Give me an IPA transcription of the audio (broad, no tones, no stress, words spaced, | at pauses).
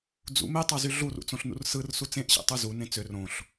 d͡zṵ me tˤɑzyɮurṵ t͡sõɬnṵrsɯrsu t͡sẽʔɕḛ tˤuzunẽ t͡sør õɬ